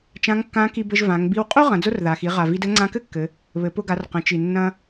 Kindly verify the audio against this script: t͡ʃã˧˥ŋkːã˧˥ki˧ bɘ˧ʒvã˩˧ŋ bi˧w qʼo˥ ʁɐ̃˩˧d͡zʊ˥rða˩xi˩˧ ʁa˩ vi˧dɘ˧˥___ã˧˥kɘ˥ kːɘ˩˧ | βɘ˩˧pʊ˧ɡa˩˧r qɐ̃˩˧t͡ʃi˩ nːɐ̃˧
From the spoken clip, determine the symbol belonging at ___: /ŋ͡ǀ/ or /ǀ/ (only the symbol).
ŋ͡ǀ